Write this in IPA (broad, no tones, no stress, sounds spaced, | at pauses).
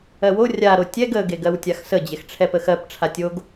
ɜ w o rʲ a ɾ o tʲ ɛ ɡ ə ɡ e ɡ ɜ w tʲ a x s ə d͡ʑ e x ʈ͡ʂʰ ɛ p ə x ɜ p ʈ͡ʂʰ a tʲ o ɡ